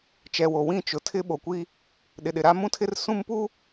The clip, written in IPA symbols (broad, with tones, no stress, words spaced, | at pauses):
t͡ʃɛ˨wo˨wĩ˦˨ t͡ʃʊ˨tʰɪ˦ ɓo˨kʷi˦ | ɗɪ˨ɗɪ˨ɾa˦mũ˦ tʰɪ˦rsũ˦mpu˦